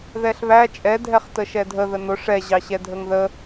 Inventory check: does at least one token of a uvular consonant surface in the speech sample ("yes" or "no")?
yes